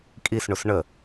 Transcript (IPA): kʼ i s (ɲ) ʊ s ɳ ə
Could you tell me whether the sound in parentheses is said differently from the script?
yes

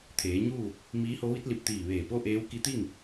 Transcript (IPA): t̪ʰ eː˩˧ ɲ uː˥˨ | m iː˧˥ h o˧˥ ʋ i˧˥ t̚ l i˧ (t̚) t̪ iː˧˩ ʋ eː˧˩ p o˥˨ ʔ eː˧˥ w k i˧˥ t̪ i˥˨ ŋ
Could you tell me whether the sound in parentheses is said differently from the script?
yes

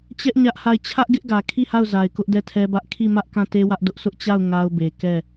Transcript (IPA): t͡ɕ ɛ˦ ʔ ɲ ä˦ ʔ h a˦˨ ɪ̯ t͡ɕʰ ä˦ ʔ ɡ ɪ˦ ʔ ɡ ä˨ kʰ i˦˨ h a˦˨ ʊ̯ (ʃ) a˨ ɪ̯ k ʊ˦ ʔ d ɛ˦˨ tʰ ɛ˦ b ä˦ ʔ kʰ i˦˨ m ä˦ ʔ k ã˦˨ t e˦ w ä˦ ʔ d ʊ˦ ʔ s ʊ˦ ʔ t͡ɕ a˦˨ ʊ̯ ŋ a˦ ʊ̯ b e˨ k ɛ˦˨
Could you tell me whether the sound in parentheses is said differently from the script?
yes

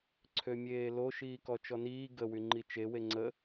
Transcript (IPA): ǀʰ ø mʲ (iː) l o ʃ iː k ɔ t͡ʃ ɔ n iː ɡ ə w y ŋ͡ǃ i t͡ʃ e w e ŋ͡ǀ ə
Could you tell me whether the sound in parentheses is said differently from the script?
yes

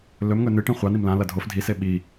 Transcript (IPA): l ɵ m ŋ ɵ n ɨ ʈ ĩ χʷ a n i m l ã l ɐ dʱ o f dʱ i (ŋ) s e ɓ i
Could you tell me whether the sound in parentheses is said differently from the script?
yes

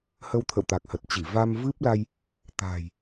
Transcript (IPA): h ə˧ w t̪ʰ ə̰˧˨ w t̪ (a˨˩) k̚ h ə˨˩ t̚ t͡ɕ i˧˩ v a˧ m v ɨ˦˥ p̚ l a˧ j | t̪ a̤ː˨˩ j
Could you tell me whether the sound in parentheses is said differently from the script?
no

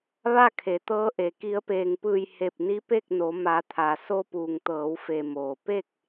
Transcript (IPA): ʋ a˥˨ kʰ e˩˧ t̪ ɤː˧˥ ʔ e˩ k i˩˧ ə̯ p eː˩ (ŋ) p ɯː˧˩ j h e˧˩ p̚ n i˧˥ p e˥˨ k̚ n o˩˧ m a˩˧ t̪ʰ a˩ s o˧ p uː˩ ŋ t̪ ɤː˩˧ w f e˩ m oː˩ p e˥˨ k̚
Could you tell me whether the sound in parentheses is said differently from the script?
no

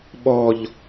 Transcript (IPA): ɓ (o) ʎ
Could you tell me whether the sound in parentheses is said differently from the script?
yes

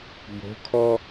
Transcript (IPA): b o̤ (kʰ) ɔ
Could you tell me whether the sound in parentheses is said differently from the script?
no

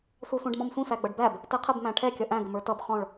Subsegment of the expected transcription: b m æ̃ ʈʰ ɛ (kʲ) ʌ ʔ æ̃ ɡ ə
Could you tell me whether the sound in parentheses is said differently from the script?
no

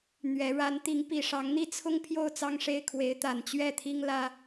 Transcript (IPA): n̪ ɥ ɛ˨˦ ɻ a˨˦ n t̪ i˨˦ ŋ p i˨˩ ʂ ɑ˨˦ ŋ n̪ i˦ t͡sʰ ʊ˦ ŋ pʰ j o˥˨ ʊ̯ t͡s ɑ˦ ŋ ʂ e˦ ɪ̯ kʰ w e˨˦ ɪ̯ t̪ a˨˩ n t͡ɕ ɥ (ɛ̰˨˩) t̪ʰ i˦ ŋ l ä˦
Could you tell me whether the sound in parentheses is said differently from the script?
yes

